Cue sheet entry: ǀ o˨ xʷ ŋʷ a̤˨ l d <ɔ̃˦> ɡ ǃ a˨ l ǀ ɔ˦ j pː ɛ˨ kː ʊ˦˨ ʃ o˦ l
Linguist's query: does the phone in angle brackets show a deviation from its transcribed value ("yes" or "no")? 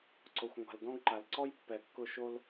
no